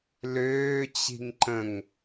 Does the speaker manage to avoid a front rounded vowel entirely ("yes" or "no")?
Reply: no